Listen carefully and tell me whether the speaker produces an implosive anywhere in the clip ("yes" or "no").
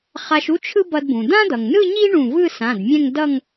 no